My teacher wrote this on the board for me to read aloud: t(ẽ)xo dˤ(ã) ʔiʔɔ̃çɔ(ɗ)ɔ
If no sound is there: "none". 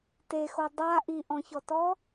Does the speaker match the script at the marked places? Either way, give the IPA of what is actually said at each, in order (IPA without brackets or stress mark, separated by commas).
e, a, t